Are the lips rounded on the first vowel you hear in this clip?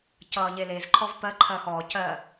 no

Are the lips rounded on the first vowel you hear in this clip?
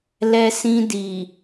no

